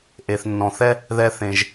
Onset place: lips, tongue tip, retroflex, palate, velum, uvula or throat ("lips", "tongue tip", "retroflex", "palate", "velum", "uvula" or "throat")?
throat